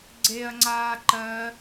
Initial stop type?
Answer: click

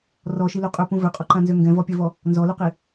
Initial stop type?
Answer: ejective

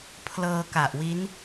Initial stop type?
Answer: aspirated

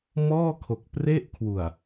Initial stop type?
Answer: aspirated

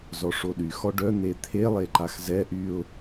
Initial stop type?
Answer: implosive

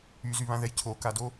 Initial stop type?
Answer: aspirated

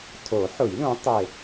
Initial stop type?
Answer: aspirated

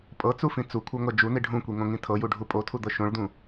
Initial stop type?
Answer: ejective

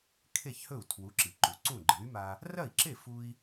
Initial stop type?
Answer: aspirated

